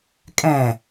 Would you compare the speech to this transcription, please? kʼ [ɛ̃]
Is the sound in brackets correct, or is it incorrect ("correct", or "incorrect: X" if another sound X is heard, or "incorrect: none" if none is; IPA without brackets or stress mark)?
correct